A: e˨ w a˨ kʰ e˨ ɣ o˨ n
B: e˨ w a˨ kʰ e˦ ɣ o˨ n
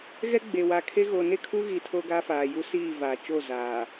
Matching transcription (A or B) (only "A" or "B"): B